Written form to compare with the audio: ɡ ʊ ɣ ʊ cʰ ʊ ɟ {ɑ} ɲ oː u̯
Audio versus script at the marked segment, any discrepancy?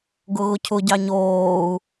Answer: no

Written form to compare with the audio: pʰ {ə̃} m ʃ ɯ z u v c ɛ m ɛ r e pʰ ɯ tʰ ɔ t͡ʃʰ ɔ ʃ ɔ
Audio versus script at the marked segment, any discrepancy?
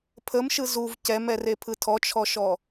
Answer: yes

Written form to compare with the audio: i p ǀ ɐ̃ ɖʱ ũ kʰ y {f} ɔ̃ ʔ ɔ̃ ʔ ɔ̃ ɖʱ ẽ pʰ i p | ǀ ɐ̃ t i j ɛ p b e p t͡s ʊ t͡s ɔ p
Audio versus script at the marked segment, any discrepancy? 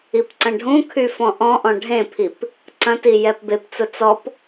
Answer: no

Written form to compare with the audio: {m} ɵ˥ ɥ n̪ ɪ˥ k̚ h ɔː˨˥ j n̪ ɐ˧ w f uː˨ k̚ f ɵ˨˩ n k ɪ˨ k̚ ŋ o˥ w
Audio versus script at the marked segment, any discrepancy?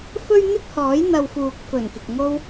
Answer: yes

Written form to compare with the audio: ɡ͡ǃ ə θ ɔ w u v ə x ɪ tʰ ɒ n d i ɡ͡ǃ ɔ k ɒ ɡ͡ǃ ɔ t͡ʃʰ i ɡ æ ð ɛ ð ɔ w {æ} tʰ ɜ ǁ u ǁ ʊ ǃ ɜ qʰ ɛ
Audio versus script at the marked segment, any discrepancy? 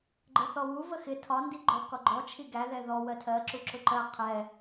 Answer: yes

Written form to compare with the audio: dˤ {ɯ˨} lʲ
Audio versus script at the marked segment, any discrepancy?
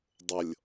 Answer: yes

